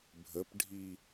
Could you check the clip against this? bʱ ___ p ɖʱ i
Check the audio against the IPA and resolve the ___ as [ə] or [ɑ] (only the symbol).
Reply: ə